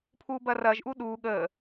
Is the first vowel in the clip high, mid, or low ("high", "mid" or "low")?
high